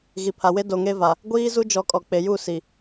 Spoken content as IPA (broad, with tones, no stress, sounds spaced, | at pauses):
ɣ i˨ pʰ a˨ w e˦ d o˨ ŋ e˦ v a˨ | ɡʷ iː˦ z u˦ d͡ʒ ɔ˨˦ kʼ ɔ˨ k͡p e˨ j u˦˨ s i˨